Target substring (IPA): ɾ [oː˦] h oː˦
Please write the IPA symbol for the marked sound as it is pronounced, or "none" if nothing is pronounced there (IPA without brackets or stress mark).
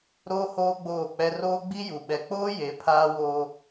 oː˦